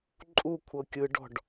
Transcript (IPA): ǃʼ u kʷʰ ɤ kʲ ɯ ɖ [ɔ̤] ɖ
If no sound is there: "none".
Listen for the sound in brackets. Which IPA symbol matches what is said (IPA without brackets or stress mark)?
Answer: ɔ̤